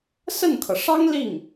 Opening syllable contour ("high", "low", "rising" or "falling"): falling